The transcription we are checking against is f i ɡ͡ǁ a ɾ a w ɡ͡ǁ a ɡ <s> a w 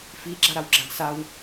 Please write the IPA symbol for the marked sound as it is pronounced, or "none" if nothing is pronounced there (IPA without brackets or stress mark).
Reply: s